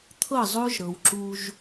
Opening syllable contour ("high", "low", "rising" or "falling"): falling